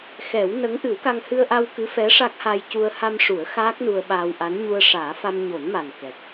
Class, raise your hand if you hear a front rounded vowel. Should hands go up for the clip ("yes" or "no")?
no